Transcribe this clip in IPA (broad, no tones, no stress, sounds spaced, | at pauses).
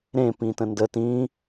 ɾ ẽ p ĩ t ə̃ n d ə t ĩ